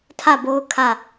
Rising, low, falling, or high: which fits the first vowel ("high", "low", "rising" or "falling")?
falling